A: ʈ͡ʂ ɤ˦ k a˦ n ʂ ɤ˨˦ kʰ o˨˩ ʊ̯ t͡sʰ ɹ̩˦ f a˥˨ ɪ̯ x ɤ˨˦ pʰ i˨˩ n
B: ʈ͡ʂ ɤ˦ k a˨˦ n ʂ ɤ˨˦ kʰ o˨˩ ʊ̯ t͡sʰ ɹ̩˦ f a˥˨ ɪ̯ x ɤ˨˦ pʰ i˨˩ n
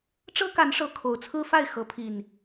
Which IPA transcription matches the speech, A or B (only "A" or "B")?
B